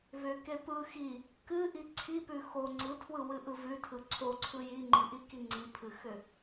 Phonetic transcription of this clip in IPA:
vʏke pɯ xi | kɨʔi ǀʰipʉ xo ŋ͡ǀɯtʰwɯwɨʔɯ vʉtʰɯ ǀʰoǀʰɯ jiŋ͡ǃiʔiki ŋ͡ǀipʰɨxʏ

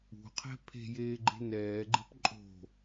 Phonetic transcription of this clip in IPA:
ṳqʰɛ̤ pʰe̤jeːɡ͡ǃe̤ nɛːɡ͡ǃe̤p ǃʼo̤

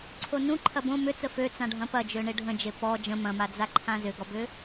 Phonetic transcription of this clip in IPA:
ǀʰonũǃʰɐ bõ mʏt͡sə fø t͡sãɖʱɐ̃pɐd͡ʒø ɳɪɖʱə̃d͡ʒe pɔ d͡ʒə̃ mɐ̃mad͡za ǃʰãzʏɡɔbʏ

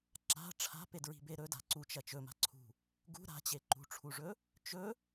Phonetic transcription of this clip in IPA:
ǁa̤ ʈ͡ʂʰa̤pedɹi̤be ɾɵda̤ ǀut͡ʃɐ t͡ʃɵma̤ǀʰṳ | ɡṳ ɾa̤t͡ɕe ǃṳʈ͡ʂʰuʐɵ | t͡ʃɵ

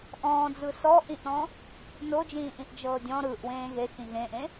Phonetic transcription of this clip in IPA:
ʔɔ̃ːd͡zɯ sɔʔĩʔɾɔ̃ | nod͡ʒĩːʔĩʔ d͡ʒɤːdʲɔ̃ ɾɯʔ wẽːɣe xĩɣẽʔẽ

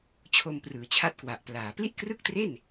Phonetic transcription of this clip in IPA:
t͡ɕʰo˧mprɯː˩˦t͡ɕʰa˦˥t̚kwa˨˩ʔ plaː˩˦ pli˥˩ʔkrɯ˥˩k̚ tre˥˩n

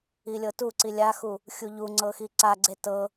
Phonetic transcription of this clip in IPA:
ilʲɤtuǀi lʲaxu | xʲuʎuŋ͡ǀɤ xiǀaɡ͡ǀe tɤ

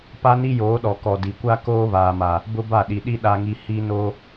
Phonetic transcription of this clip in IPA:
pa˦ni˦ joː˨˦ɗɔ˨kɔ˨ di˨ kʷa˦ koː˦βaː˨ma˨ | bʊ˦ba˦˨ɗi˨ɗi˦ ɗa˦ŋi˦ hi˦noː˦

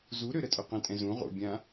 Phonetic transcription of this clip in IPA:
zuɾø ɾətʼøqə̃tʼɛ̃ zũ ʁo̰bʲã

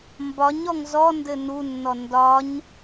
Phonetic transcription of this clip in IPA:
mbɒɲɔŋ zɔndɘ nunːɔ ndɒɲ

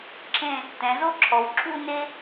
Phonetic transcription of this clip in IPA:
ǁʰẽ˥˧ | tɛ̃˩˧zo˥ǁʰɔ˩˧w ǁʰu˥˧ ne˥

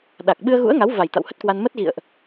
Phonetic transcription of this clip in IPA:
ɗa˨˩k̚ ɓɨ˧ə̯ɣṵ˧˥ə̯ŋa˨˦wva˨˩j t̪a̰˧˨whə˦˥t̚kwa˧n mə˦˥t̚ɣḭ˧˨ə̯ʔ

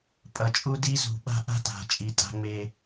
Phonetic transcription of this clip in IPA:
pʼʌ˨t͡ʃʼu˦ di˦zṳ˨ɓa̤˦ ʔa̤˦ta̤˨ t͡ʃʼi˨ tʼa̤˦ŋ͡me˦

